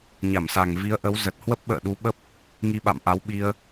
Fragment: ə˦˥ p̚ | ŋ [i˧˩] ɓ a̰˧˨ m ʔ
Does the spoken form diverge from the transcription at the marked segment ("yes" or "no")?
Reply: yes